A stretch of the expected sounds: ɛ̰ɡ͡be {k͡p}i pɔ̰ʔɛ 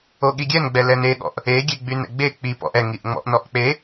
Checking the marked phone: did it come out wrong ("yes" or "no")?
no